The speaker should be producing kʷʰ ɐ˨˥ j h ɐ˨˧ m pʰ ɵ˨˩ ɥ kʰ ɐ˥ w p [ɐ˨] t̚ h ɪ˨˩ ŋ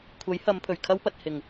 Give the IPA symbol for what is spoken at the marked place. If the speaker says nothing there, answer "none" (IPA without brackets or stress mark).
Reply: ɐ˨